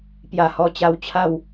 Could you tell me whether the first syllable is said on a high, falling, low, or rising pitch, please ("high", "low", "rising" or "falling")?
low